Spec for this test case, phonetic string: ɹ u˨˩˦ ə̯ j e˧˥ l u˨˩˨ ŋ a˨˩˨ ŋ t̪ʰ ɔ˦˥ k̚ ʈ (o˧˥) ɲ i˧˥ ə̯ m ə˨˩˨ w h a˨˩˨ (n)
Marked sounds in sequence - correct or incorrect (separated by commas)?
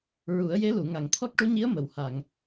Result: incorrect, incorrect